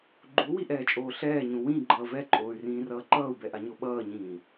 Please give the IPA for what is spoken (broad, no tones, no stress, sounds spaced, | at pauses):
ɡ͡ǃ u w i ʔ ɛː t͡ʃʼ oː ɬ ɛː ɲ ũ w ĩ ɡ͡ǃ ʌː v ɛ ǃʼ oː y̯ r ĩː r ʌː ǃ ʌː u̯ b ɛ ʔ a ɲ o ɓ ʌː ɲ ĩː